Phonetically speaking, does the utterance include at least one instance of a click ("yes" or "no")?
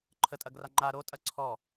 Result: yes